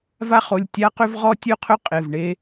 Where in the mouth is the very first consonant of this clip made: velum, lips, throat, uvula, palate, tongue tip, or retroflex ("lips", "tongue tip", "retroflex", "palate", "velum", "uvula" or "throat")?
lips